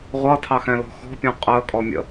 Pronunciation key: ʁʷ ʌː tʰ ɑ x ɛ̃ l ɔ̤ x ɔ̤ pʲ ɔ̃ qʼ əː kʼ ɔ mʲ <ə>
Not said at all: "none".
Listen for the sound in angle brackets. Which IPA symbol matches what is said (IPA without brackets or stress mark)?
ə̰